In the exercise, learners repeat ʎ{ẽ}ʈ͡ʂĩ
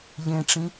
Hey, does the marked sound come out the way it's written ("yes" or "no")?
yes